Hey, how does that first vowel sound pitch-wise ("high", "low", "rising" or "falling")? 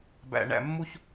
low